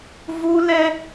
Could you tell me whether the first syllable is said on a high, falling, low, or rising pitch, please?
high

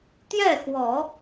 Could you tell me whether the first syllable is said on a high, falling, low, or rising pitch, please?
falling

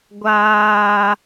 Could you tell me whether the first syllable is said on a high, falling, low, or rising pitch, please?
high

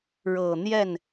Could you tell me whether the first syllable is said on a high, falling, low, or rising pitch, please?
low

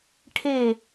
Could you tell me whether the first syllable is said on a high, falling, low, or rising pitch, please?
falling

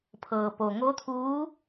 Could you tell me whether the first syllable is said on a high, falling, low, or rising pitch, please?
low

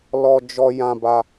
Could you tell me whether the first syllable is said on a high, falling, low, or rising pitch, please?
high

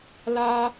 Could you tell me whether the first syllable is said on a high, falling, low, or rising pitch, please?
high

